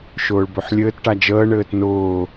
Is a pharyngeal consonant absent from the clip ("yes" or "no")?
no